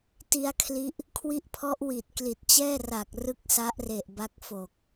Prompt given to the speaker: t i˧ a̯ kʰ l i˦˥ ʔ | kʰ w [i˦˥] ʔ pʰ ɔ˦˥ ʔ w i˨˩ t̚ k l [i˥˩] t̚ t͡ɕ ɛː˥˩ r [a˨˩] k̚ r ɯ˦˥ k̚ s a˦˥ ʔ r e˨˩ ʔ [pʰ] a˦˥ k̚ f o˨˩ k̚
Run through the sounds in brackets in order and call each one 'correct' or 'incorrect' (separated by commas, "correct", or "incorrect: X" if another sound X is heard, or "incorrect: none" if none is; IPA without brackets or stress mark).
correct, incorrect: i˨˩, correct, incorrect: b